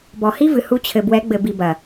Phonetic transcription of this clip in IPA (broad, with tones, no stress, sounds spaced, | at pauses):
b ɔ˨ h i˦ v ɨ˨ h u˧ t͡ɕʰ ɘ˨ b w ɛ˨˦ ɡ͡b ɘ˨ b i˨ b ɐ˨